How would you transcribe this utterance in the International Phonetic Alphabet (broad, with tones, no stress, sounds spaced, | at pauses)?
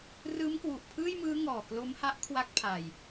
r ɯː˦˥ m k w u˨˩ ʔ pʰ ɯː˥˩ j m ɯː˦˥ ŋ ɔː˨˩ k l o˦˥ m h a˦˥ ʔ kʰ w a˥˩ k̚ pʰ a˨˩ j